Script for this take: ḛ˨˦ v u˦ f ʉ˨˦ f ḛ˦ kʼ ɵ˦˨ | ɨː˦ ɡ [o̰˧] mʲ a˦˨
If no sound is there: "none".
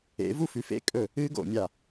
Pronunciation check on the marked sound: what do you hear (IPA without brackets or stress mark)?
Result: o̰˨